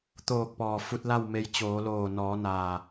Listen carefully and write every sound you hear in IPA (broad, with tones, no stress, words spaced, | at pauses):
t̪oː˧˩k̚pɔː˩ fu˧t̚la˥˨wme˧j t͡ɕoː˩˧loː˧˩ nɔː˩˧naː˩